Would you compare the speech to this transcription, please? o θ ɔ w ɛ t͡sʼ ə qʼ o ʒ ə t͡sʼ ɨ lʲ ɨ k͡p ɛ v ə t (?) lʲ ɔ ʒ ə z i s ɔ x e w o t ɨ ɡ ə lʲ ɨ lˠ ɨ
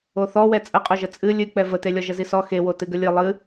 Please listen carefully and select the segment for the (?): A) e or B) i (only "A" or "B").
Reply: A